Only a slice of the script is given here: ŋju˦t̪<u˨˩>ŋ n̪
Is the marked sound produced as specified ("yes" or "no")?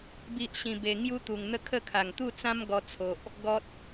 yes